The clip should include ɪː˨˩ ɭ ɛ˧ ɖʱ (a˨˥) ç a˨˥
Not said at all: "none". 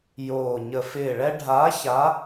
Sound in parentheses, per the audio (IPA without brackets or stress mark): a˨˥